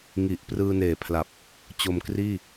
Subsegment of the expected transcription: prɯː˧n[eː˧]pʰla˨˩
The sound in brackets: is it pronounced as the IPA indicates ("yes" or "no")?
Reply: no